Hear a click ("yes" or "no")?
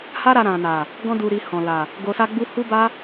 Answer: no